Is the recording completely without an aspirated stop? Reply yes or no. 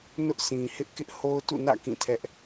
no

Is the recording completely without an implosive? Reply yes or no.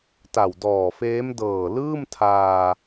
yes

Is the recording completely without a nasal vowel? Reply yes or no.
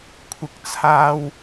yes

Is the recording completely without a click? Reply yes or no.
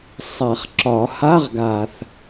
no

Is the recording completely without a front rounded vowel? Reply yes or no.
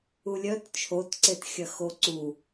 no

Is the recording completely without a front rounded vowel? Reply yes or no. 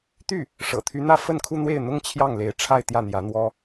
no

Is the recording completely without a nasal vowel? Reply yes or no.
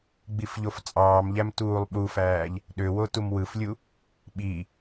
yes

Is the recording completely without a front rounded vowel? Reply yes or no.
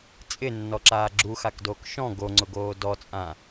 yes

